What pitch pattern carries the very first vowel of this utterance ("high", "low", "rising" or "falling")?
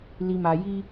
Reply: low